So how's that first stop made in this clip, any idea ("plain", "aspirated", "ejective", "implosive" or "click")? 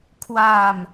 aspirated